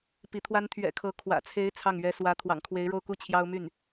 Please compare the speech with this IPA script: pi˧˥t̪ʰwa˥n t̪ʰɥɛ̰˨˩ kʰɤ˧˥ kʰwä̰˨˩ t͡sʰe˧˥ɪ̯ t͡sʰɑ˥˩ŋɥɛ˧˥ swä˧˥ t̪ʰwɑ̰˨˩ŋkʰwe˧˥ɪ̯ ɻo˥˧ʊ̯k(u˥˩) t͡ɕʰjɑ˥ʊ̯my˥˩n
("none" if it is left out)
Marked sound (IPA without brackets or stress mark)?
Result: u˥˩